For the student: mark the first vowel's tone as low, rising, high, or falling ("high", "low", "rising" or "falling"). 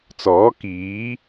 rising